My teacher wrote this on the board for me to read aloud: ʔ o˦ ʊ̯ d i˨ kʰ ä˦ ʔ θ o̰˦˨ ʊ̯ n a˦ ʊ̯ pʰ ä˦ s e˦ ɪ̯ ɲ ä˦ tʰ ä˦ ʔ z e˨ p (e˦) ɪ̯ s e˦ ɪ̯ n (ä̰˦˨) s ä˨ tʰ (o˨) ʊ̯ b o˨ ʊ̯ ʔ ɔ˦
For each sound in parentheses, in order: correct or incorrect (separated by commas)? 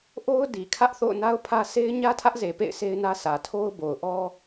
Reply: incorrect, incorrect, incorrect